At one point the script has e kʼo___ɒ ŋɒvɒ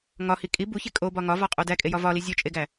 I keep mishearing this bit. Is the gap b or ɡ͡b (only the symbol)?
b